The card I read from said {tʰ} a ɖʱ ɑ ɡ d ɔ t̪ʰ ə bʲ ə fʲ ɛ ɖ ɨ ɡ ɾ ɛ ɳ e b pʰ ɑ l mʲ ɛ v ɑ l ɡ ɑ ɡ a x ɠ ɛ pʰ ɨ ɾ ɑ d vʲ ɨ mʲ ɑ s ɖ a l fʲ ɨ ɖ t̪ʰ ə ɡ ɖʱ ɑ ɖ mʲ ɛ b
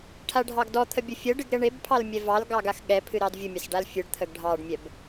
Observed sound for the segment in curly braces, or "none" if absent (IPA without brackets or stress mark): ʈʰ